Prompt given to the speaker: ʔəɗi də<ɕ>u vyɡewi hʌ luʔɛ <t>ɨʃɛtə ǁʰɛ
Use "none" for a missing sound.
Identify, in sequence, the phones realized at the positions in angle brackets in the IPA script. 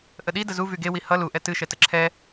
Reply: z, t

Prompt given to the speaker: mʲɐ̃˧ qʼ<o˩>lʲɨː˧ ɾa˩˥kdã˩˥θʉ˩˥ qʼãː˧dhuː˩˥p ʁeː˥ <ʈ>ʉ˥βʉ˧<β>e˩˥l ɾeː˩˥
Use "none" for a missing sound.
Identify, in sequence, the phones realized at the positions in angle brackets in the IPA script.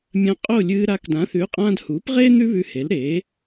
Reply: o˥˩, n̪, h

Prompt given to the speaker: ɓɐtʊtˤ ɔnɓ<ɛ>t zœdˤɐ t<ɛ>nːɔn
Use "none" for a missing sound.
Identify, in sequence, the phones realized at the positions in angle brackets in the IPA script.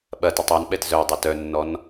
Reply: ɛ, œ

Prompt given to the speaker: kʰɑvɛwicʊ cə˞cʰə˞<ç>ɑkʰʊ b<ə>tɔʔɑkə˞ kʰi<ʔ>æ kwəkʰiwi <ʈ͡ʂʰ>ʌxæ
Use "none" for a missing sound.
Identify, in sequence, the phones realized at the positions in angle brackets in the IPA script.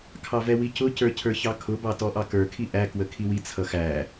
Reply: ç, ɑ, ʔ, t͡sʰ

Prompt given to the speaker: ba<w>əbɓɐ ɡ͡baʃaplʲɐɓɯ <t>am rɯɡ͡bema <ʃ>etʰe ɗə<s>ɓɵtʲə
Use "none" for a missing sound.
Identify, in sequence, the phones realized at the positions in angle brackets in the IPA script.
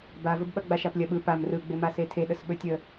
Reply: v, p, s, s

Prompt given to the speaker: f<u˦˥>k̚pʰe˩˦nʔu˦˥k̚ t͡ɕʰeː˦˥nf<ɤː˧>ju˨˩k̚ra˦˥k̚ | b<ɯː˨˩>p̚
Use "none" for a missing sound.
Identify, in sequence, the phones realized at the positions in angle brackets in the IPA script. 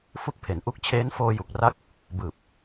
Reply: u˦˥, oː˧, ɯː˨˩

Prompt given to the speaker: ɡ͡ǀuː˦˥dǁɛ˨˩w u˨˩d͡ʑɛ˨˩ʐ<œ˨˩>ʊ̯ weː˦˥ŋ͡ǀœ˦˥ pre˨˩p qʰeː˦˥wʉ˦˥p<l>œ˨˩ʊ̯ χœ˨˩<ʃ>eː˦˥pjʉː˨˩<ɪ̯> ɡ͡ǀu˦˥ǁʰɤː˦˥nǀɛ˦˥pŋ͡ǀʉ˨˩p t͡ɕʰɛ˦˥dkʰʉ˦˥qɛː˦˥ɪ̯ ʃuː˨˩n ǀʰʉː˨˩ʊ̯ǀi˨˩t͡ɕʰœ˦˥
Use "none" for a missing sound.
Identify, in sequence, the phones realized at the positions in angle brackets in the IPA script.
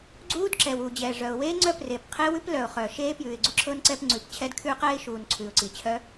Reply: œ˨˩, l, ʃ, ɪ̯

